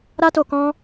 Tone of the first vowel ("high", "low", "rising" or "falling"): high